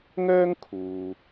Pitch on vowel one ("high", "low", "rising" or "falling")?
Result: high